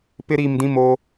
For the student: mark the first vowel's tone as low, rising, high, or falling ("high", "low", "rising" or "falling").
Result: high